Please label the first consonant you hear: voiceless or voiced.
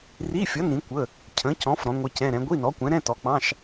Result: voiced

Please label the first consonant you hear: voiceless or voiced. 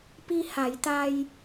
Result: voiceless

